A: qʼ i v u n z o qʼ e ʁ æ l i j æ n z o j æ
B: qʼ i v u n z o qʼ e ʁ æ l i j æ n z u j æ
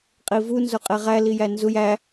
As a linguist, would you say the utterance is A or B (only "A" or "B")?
B